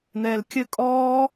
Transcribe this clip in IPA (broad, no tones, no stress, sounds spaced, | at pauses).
n̪ ɛː l kʲ ɘ kʼ ɔː